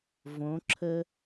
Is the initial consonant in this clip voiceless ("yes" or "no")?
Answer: no